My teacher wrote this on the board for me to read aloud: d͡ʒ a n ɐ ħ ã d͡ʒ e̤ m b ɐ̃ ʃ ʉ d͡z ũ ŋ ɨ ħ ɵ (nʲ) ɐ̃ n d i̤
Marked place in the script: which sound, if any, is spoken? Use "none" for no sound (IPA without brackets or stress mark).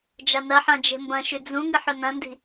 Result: n